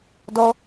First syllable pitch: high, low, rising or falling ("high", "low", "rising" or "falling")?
high